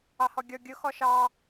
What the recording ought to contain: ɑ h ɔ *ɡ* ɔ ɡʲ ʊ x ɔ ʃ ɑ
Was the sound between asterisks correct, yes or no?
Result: no